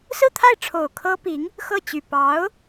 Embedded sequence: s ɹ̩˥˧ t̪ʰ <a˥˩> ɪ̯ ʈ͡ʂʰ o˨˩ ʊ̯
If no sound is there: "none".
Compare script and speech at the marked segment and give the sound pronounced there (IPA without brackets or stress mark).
a˥˩